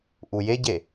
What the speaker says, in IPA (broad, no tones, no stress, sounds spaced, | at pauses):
ʔ u j e ɟ e